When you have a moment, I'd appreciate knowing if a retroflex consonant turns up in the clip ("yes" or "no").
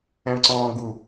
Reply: yes